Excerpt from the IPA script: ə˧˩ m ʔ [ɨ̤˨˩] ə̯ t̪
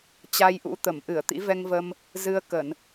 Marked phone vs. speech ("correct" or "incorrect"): incorrect